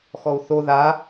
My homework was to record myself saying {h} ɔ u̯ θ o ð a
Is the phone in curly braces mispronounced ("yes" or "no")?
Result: yes